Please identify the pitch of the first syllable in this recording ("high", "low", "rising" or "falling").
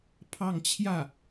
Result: falling